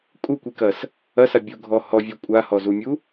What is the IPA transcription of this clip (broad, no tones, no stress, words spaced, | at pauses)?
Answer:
kʼukʷikɐs | ɐsa bʲuɡʱɔ hɔvʲu kʷʼahɔzumʲu